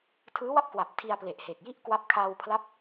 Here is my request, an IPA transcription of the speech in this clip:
tʰɯː˦˥wa˥˩p̚kwa˨˩p̚ tʰi˧a̯ ple˨˩ʔhe˨˩k̚ ji˥˩ʔkwa˦˥p̚ kʰaː˧wpʰla˦˥p̚

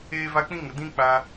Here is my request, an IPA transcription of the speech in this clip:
eː˦ va˦ k͡pĩ˦ŋə˨dĩ˦ k͡pa˧

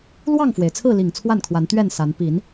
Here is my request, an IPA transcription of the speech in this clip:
lwɑ˥˨ŋfwe˩ɪ̯t͡sʰɹ̩˥˨ li˨˩ŋ t͡sʰwa˥˨nkʰwa˨˦n t̪ɥɛ˥˨nsa˨˦n pi˨˦n

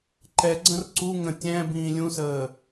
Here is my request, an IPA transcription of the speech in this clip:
ǃɛɡ͡ǀə̃r ǀu ŋə̃ tʲɛ̃ bĩːlʲũsəː

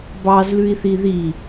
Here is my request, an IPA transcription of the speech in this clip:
bɑzlʉi̯θi ði

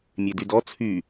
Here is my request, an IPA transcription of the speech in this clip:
mʲedydɔ t͡sʰy

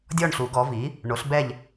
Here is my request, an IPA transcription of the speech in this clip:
dʲɔ˦˨ɳɬu˨˩˦ɡɔ˩˥vi˩˥ | ɳo˩˥ɬbɛ˦˨ʎ

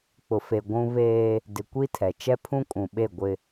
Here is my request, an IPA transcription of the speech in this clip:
k͡pʊ˨fe˨ ɡʷũ˦ βeː˦ | dɪ˨ kʷi˦tʰɛ˨ t͡ʃɛ˦pʰũ˦kʼũ˨ɓe˦˨ ɡʷɪ˦

